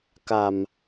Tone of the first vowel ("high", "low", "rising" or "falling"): low